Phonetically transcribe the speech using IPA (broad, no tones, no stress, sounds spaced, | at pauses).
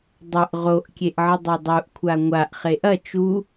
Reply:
dˤ ə ʔ ʁ o ʔ kʲ e ʔ ʕ ə dˤ o dˤ u ʔ kʷʰ a ŋʷ a ʔ χ e ʔ ɐ t͡ʃ u